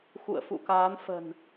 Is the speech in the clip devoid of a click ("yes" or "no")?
yes